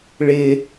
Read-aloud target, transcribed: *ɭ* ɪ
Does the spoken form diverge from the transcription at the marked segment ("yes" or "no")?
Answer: no